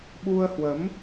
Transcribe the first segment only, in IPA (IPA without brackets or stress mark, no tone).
ɓ